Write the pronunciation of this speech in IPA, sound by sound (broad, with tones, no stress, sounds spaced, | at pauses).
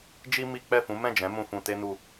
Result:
d͡ʒ i˦ m i˦ k͡p ɛ˦˨ f ũ˨˦ m ɛ̃˦˨ d͡ʒ ɛ̃˨˦ m ũ˧ f ũ˧ t e˦ n u˧